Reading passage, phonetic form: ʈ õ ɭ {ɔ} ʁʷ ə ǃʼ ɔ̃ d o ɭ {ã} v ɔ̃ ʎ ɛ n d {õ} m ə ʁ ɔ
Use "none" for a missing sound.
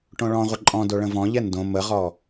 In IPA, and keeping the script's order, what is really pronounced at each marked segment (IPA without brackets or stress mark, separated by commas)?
ɔ̃, ə̃, õ